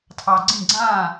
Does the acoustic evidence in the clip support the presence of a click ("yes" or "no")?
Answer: yes